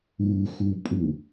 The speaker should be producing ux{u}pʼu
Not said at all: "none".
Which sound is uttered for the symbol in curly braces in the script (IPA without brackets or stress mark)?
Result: u